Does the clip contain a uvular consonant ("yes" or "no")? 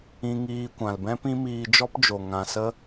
no